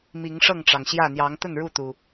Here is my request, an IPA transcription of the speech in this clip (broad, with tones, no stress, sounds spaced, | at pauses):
m i˨˦ ŋ ʂ ɤ˥˨ ŋ ʈ͡ʂ ɑ˩ ŋ ɕ j ä˥˨ n̪ j ɑ˨˦ ŋ t̪ ə˥˨ n ɻ u˥˨ t̪ u˩